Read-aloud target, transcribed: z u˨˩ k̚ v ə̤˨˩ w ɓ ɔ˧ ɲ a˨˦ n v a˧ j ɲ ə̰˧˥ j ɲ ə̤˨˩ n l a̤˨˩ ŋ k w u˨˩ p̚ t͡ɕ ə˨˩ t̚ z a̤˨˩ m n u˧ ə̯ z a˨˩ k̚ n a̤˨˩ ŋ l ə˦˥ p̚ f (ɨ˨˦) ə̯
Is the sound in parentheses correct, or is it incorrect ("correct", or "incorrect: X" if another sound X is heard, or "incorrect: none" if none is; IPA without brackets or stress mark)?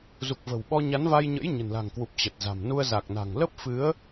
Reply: correct